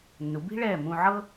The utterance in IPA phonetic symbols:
nː u˩˥ b i̤˥ ɭ ɛː˥˩ m ũː˧ ʕ ɤ˥

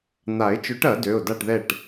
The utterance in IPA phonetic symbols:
n̪ a˨˩˦ ɪ̯ t͡ʃ ø˨˥ ʈ ɐ˨˩˦ d ø˩˧˩ ʊ̯ d a˦˨ ʈ ð ɛ˦˨ ʈ

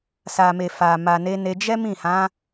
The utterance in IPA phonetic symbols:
s a˨ m e˨ f a˨ m a˨ n e˧ n e˧ d͡ʒ ɛ˦ m ĩ˦˨ h ã˨˦

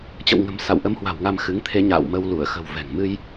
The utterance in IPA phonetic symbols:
t͡ɕ ə̰˧˨ w ŋ ə̤˨˩ m s a̰˧˨ w ʔ ə˨˦ m h w a̤˨˩ w ŋ a˧ m x ɨ˨˦ ŋ t̪ʰ e˨˦ ɲ a̰ː˧˨ w m ə˧ w l u˧˩ ə̯ x ə̤˨˩ w v ɛ̤˨˩ ŋ m ɨ˧ j

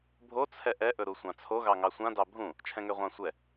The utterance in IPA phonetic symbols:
bʱ o t͡sʰ ɛ ʔ ɛ ʔ ɵ ɾ u sʷ ɑ̃ t͡sʰ o ɣ ɑ ŋ ɑ sʷ ã d ɑ bʱ ũ | t͡ʃʰ ɛ̃ ŋ ø ʁʷ ã sʷ ɛ

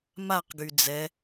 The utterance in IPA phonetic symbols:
m a q ɡ y d͡z ɛ

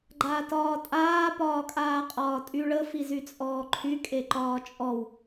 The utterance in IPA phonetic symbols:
ɡ͡ǃ aː t ɒː tʼ aː p ɒː kʼ aː qʼ ɒː tʼ y ɭ ə f i z y t͡sʼ ɔː ǃʰ y kʼ e ǃ ɒː t͡ʃʼ ɔ w

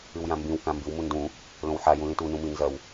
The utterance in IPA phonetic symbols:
ɨ w j ã m b ĩ w k ã m b ɨ w m u n d ũ | l õ w ħ a j ũ l ĩ t u n ũ m ĩ n z ɐ w

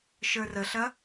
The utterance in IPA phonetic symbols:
ʃ ə˞ r ə ɬ ɐ

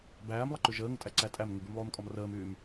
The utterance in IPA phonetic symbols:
b æː m lˠ ə ǃ y ʒ əː ŋ ə tʼ æ ǀ æ tʼ æ m ŋ ə ɡ y m lˠ uː m kʼ ɔ m r əː m yː m

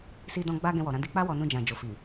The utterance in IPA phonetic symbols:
s i˦ d ɔ̃˦ ɡ͡b a˦ ɡ ɛ̃˧ w ɔ˨ ɾ ã˧ d i˧ k͡p a˦ w ɔ˧ n ũ˧ d͡ʒ ã˨ d͡ʒ o˨ f i˨

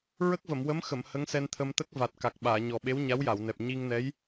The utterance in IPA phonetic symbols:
ɹ ə˦˥ k̚ v ə˨˩˨ m w ə˧˥ m x ə˨˩˨ m h ə˧˥ ŋ s ɛ˧ n t̪ʰ ə˧ m t̪ ə˦˥ k̚ v a˨˩ t̚ k a˨˩ k̚ ɓ aː˨˩˨ ɲ ɔ˨˩ ɓ e˧˥ w ɲ a˧˥ w j a˨˩˨ w n ɛ˨˩ p̚ ɲ i˧ ŋ n ɛ˧˥ j

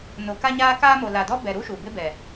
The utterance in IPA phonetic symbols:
n o˨ k a˦ ɲ aː˦ k aː˦ m o˨ l a˨ d ɔ˦ b ɛ˨ ɾ u˦ ʃ u˨ b ɪ˦ b ɛ˨

